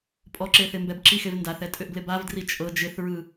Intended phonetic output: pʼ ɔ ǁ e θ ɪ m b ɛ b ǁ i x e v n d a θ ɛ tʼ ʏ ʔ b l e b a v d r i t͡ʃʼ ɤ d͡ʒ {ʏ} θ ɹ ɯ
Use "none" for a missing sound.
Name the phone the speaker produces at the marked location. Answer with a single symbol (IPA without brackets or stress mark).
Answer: ɪ